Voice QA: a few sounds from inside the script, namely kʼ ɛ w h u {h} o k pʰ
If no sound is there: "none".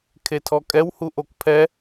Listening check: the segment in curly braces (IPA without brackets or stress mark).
ʔ